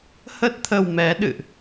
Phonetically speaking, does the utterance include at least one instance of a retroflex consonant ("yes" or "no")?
no